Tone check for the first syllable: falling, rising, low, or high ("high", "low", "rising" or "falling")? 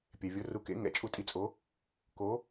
low